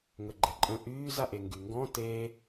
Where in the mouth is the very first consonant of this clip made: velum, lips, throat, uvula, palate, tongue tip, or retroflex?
velum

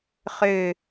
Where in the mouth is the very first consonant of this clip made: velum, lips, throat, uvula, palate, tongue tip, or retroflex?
uvula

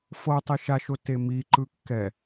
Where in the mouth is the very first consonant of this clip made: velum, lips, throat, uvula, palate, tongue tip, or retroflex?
lips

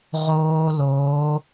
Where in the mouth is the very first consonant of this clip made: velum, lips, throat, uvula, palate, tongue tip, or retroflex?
uvula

